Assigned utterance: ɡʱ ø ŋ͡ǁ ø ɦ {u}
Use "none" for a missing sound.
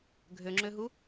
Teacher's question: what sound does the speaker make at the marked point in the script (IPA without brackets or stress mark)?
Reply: u